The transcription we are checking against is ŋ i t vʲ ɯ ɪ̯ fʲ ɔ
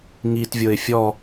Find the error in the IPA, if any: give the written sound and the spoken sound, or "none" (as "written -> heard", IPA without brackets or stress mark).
ɯ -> ɤ